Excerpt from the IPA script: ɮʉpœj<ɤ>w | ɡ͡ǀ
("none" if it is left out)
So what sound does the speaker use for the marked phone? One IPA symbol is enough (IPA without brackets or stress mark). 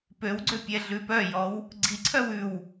ɔ